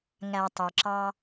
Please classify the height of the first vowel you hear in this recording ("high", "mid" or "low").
low